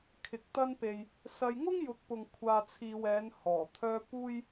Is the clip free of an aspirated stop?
no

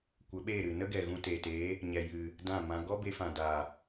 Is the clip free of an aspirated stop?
yes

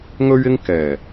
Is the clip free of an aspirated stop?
yes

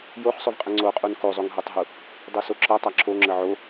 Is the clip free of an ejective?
no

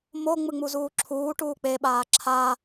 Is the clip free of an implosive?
no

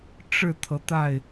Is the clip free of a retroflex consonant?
no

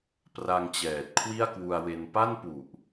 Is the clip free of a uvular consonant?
yes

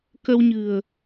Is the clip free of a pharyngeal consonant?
yes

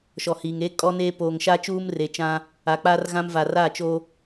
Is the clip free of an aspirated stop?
yes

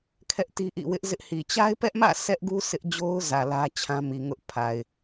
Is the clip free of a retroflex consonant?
yes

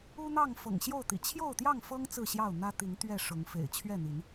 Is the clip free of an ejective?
yes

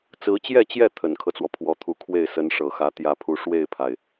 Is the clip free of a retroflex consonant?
no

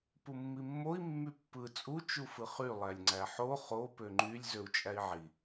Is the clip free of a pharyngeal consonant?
no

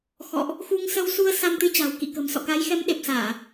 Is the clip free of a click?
yes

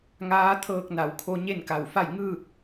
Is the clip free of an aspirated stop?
no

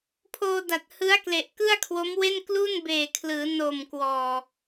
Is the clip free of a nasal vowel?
yes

